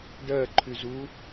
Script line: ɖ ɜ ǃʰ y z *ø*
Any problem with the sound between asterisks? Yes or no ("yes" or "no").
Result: yes